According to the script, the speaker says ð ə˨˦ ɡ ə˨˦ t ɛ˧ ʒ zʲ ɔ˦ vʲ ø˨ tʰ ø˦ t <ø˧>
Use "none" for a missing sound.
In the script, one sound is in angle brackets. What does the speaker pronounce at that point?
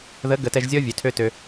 ø˧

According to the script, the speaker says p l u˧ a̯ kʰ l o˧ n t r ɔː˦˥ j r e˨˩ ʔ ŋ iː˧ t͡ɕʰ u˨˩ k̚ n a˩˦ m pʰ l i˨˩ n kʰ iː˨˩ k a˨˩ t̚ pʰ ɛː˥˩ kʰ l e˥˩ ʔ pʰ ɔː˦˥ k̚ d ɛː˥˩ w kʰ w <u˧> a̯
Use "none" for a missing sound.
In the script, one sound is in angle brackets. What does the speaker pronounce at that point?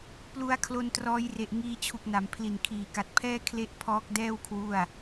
u˥˩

